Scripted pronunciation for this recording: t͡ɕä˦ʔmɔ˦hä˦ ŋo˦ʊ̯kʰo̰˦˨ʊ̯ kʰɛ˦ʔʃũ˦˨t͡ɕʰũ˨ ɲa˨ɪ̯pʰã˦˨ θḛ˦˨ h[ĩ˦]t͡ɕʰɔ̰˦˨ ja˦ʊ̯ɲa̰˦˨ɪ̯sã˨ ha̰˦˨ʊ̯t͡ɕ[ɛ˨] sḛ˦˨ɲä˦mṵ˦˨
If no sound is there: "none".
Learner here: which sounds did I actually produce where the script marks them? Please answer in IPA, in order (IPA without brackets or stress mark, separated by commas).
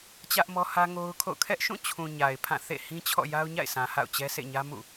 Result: ĩ˦, ɛ˦